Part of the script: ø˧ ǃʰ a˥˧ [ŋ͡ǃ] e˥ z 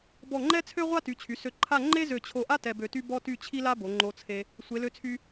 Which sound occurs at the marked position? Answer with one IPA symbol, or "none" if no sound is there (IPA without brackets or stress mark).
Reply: ŋ͡ǃ